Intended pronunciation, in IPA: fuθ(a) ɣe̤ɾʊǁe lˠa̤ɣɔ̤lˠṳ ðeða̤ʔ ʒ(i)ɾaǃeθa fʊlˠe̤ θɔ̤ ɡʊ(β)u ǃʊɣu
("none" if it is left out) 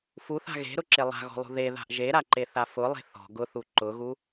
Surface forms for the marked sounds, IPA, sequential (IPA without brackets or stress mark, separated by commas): a̤, e, θ